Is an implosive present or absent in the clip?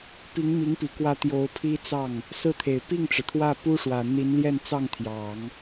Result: absent